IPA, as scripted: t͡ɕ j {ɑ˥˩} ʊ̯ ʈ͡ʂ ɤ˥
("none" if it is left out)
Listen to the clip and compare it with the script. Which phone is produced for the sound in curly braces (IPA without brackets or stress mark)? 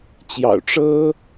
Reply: ɑ̰˨˩